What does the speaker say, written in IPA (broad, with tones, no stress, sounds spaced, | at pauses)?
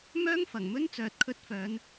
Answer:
m œː˥ ŋ f ɐ˨˩ ŋ m ɵ˥ n t͡s œː˨ t̚ kʰ ɵ˧ t̚ f œː˨˧ n